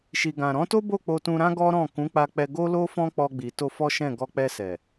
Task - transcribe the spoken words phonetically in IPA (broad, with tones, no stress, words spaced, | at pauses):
ʃi˨ɡã˨ ɾɔ̃˨˦to˦bo˦˨ k͡po˧tũ˧ɾã˦ ɡɔ˦ ɾɔ̃˦˨ kũ˨˦k͡pa˧k͡pɛ˧ ɡo˦ lo˦fɔ̃˦k͡pɔ˧ɡ͡bi˨ to˧ fɔ˦ʃɛ̃˦˨ ɡɔ˧k͡pɛ˧sɛ˨